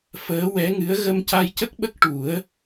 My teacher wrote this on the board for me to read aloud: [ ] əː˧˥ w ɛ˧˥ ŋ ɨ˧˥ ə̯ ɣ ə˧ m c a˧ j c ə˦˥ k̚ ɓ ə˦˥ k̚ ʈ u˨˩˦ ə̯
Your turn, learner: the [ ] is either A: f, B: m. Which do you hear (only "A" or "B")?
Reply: A